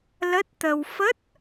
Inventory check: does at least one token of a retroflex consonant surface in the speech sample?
no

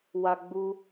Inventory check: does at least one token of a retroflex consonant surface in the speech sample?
no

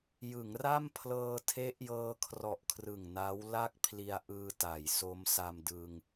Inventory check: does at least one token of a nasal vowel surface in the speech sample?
no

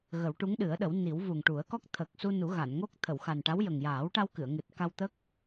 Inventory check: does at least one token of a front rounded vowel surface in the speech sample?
no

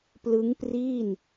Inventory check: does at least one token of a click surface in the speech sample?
no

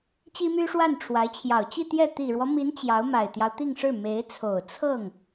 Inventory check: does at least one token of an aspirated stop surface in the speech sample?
yes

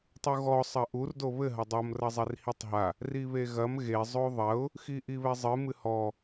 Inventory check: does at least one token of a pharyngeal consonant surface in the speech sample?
no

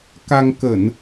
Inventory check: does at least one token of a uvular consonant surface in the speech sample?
no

